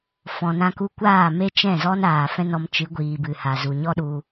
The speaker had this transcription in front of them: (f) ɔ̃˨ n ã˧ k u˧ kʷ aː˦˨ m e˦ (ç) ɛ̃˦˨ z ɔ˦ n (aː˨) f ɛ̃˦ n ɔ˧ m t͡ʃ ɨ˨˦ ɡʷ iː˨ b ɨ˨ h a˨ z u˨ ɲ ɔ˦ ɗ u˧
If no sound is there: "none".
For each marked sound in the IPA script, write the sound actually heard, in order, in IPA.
f, t͡ʃ, aː˨

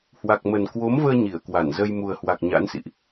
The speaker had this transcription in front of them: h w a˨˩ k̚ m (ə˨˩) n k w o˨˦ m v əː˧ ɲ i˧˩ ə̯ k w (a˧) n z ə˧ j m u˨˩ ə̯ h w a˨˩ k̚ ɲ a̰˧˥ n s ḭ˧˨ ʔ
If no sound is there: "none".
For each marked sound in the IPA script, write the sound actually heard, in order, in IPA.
ə˨˩, a˧˩

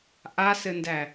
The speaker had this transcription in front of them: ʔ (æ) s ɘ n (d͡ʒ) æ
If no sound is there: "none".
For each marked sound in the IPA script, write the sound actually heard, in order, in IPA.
a, d

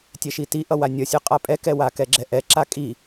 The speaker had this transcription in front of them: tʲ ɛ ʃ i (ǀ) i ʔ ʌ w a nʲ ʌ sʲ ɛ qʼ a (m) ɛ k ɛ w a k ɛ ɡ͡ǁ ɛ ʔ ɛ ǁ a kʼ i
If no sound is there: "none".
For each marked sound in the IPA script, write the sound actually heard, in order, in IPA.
t, pʼ

